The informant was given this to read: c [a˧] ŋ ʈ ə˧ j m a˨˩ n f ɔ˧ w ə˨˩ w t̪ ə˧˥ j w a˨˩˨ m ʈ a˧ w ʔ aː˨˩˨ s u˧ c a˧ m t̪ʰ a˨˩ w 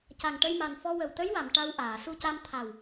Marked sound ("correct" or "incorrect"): incorrect